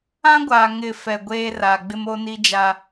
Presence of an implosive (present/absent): absent